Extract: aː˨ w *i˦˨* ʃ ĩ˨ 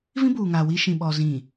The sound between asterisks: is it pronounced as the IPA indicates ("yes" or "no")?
no